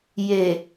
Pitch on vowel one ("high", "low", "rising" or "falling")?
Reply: low